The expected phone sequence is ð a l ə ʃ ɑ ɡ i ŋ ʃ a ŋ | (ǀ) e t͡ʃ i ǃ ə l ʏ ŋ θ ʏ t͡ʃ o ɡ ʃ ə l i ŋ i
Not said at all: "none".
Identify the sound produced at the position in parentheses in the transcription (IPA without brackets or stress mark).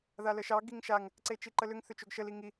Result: ǀ